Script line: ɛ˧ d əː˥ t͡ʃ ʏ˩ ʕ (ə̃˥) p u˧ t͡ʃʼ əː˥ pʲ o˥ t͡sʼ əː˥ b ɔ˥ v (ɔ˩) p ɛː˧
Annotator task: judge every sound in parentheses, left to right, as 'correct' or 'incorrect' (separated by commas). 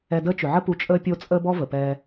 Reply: incorrect, incorrect